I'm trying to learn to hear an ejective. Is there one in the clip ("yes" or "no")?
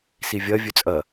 yes